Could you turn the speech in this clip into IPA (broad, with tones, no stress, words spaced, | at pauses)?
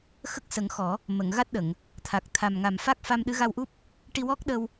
xə˦˥k̚sə˨˩˦ŋxɔ˨˩˦ | mə˨˩˨ŋ ɣa˦˥t̚ɗə˨˩˨ŋ | t̪ʰa˨˩k̚t̪ʰa˨˩mŋa˨˩m fa˦˥k̚fa˧mɗɨ˧˥ ɣa˧wʔu˦˥p̚ | ʈi˧wɔ˦˥k̚ ɗə˧w